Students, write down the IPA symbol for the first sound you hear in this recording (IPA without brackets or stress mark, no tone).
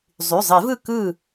zˤ